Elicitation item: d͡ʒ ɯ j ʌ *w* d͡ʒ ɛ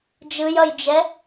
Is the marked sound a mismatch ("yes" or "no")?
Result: yes